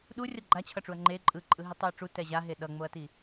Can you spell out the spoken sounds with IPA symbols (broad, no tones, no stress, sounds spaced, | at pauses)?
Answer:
ɗ u rʲ ʌ ɡ͡ǃ a t͡ɕʰ ʌ ʈ͡ʂ u ɐ̯ ŋ͡ǃ e ǃʼ ɯ ǃʼ ɯ ɦ i tˤ o ɐ̯ ʈ͡ʂ u t ɛ ʑ a ɦ e ɗ ʌ ŋ͡m o ɐ̯ t i